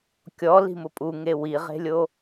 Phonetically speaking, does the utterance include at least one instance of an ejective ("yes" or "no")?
yes